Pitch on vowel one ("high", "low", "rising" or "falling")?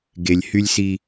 low